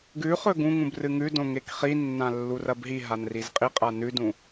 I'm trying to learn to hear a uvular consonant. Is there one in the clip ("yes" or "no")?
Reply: yes